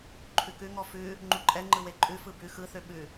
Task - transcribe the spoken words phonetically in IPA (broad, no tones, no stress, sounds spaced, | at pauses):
ǃʰ ʉ k ʉ ŋ ɔ f ʉ | ŋ͡ǃ u ǃʼ ɛ ŋ͡ǃ ɯ w e ǃʼ ʉ f ɯ b ʉ x ɯ θ ø ɓ ʉ